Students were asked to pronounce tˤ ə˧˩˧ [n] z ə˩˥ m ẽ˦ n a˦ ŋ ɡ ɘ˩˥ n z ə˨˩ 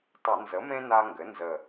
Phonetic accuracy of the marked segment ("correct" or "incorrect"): correct